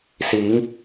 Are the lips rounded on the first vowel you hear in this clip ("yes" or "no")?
no